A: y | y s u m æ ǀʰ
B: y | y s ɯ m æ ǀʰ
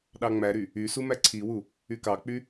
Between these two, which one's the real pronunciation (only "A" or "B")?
A